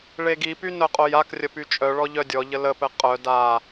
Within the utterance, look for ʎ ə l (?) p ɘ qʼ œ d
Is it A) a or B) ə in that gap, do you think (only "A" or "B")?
B